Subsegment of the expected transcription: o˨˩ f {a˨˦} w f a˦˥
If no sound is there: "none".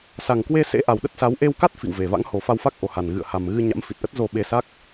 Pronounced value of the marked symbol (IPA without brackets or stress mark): a˧